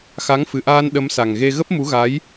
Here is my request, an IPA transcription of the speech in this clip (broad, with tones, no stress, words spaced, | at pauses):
xa˨˦ŋfɨ˨˩ʔaː˧n ɗə˨˦msa˨˩ŋɣe˧ ɣə˦˥p̚mu˨˦ɣa˨˦j